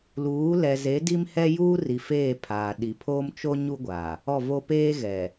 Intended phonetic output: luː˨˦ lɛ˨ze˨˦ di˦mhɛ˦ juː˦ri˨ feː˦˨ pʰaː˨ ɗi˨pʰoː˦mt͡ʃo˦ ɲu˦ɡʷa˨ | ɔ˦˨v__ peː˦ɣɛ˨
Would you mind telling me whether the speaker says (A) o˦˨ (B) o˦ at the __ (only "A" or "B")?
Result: B